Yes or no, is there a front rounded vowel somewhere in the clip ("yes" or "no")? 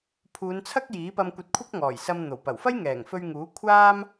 no